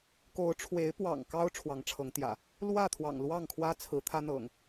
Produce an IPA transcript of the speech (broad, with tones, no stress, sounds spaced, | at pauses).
k o˨˦ ʊ̯ ʈ͡ʂʰ w e˨˦ ɪ̯ p w ɑ̰˨˩ ŋ k ɑ˦ ʊ̯ ʈ͡ʂʰ w ɑ˨˦ ŋ ʈ͡ʂʰ ɤ˨˦ ŋ t̪ j ä̰˨˩ | l w ä˥˨ t̪ʰ w ɑ̰˨˩ ŋ l w ɑ˥˨ ŋ kʰ w ä˦ t͡sʰ ɹ̩˨˦ t̪ʰ ä˦ n̪ ɤ̰˨˩ ŋ